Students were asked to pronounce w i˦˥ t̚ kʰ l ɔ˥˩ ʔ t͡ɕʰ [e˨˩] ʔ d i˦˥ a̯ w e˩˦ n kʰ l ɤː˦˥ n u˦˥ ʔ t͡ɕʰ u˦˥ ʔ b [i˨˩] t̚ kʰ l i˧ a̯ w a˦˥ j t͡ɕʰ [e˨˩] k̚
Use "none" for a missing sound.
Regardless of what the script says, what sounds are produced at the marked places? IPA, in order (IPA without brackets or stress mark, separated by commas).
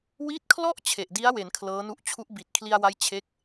e˨˩, i˨˩, e˦˥